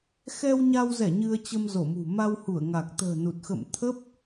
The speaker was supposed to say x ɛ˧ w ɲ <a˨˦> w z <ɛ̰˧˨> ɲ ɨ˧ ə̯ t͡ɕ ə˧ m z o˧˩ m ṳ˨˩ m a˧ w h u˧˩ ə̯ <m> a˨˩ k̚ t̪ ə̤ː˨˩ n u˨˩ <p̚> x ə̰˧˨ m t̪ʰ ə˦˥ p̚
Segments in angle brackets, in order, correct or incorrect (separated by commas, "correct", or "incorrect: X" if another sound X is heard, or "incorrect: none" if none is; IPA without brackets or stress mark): incorrect: a˧, incorrect: ɛ˧˩, incorrect: ŋ, incorrect: t̚